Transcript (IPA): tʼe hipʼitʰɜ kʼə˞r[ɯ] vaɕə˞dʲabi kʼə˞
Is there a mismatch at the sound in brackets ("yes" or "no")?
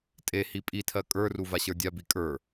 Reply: yes